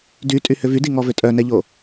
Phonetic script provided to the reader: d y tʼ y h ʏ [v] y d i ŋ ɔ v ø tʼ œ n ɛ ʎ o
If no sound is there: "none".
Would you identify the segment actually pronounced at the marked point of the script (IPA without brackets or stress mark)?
v